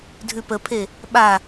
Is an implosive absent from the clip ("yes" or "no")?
no